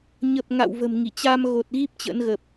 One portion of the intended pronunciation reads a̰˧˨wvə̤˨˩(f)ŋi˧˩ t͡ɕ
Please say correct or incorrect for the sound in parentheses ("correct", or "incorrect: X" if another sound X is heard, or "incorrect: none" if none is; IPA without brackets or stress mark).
incorrect: m